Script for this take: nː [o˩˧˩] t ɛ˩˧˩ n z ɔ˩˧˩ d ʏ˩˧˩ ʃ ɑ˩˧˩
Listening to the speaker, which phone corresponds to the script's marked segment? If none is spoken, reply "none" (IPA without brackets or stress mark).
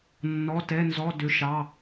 ɔ˩˧˩